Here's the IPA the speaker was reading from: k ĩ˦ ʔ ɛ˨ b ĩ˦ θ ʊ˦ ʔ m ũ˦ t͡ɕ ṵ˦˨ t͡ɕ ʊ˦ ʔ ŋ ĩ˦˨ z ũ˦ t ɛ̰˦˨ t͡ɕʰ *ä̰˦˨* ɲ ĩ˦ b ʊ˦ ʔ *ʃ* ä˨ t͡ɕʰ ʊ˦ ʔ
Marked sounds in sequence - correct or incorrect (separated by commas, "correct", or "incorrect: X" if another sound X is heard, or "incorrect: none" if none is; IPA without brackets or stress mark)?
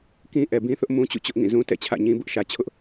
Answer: correct, correct